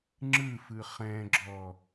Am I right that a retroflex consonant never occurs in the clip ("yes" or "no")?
yes